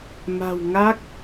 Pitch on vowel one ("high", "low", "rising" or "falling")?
low